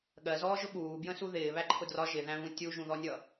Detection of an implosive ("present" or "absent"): present